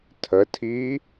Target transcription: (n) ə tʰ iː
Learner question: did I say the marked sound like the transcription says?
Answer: no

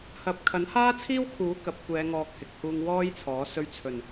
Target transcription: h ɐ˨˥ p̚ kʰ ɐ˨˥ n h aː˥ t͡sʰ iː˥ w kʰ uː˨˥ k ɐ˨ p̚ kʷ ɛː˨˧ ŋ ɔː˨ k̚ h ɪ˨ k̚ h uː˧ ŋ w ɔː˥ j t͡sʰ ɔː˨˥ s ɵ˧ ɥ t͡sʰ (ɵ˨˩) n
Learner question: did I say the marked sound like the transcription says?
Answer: yes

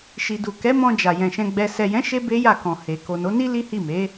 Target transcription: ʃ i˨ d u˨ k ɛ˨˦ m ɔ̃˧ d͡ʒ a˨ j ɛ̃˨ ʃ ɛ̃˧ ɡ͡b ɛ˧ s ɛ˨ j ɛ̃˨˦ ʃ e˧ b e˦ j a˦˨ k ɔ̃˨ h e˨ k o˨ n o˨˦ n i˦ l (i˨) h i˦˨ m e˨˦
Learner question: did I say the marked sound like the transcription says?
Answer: no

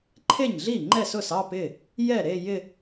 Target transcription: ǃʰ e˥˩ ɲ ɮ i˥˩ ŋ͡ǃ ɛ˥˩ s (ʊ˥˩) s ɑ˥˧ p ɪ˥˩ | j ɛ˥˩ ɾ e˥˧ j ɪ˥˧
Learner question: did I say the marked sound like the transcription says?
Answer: yes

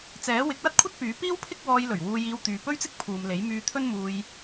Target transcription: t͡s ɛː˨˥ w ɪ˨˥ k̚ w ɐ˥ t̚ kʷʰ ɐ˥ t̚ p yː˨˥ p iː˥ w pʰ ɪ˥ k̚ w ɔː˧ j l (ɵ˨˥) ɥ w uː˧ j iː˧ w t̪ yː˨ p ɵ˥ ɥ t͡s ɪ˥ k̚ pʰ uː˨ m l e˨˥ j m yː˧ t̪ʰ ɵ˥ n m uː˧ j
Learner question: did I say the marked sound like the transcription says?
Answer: no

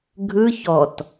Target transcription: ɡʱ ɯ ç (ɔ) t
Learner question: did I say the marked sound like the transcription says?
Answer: yes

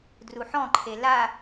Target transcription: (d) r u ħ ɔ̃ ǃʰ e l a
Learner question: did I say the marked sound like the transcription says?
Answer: yes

